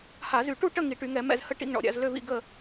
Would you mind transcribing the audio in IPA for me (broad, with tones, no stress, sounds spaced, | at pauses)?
h a˧˩˧ z y˧˩˧ ʈ u˥˨ ʈ ə˥˨ ŋ i˧˩˧ ʈ y˧˩˧ ŋ ɛ˧˩˧ m ɛ̰˥˨ z h ə˥˨ ʈ ḭ˥˨ ŋ ɳ ɔ̰˧˩˧ ɾʲ a̰˧˩˧ z l ø˥˨ v ḭ˥˨ ɡ ə˥˨